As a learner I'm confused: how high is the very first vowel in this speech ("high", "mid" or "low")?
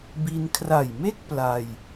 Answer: high